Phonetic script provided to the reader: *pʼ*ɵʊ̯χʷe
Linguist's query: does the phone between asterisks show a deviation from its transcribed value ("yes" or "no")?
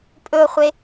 no